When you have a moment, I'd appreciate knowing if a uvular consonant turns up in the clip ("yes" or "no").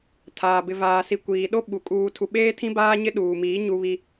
no